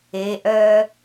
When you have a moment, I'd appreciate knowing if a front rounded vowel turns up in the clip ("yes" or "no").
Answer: yes